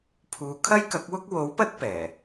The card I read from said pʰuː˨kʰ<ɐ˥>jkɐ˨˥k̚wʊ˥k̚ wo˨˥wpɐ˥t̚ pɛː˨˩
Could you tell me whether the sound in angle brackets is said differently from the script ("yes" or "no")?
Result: no